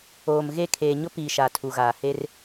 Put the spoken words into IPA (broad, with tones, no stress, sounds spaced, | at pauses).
oː˨ m ɣ e˦˨ kʰ eː˨ ɲ ʊ˦ p iː˨ ʃ a˨ tʰ u˨ ɣ aː˨ h e˦ r